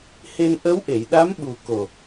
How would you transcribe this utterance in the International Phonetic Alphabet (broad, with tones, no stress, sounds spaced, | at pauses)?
h e˧ n ʔ ə˧˥ w ʔ e˨˩˨ j ɗ a˧˥ m ɓ u˨˩ k o˨˩